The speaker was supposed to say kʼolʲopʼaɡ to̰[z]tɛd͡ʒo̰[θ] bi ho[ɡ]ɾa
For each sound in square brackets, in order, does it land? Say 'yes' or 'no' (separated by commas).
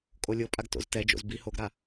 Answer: yes, no, yes